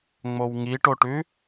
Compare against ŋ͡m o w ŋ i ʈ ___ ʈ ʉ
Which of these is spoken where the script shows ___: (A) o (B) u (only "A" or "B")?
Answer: A